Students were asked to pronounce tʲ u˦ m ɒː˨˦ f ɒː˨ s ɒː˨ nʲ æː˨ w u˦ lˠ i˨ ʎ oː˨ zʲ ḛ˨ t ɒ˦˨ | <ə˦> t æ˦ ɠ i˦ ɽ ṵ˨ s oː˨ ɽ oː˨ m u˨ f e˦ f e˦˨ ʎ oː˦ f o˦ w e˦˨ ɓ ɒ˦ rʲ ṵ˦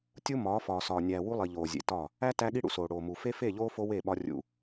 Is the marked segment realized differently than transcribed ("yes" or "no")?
yes